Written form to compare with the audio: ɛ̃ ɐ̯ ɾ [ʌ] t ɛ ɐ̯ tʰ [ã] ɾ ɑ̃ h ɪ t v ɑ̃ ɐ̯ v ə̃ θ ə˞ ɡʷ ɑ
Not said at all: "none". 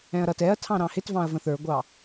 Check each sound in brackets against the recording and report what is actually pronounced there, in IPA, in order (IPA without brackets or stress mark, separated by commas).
ʌ, ɑ̃